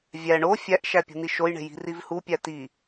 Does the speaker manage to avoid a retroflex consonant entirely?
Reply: no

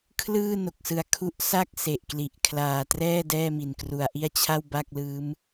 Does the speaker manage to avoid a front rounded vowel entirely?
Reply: yes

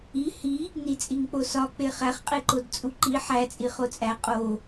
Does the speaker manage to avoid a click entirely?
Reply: no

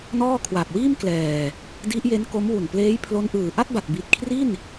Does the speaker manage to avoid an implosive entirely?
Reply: yes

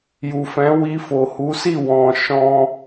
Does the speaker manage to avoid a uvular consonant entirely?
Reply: yes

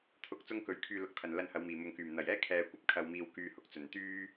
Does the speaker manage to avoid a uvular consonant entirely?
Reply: yes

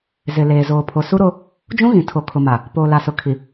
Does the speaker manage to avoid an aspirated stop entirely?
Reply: no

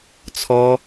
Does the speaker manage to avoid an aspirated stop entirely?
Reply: no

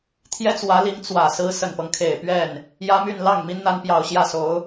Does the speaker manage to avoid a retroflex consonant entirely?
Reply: yes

